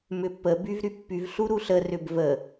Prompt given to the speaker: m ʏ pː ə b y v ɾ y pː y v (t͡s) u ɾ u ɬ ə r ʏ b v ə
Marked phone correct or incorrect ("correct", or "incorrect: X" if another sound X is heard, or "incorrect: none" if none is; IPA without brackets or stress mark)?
incorrect: ɬ